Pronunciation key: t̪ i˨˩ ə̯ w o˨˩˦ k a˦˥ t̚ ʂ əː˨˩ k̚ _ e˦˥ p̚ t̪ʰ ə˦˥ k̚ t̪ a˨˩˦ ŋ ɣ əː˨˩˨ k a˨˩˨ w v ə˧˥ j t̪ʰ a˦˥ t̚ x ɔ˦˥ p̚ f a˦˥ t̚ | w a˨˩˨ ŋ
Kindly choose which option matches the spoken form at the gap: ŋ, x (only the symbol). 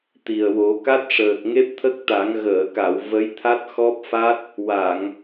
ŋ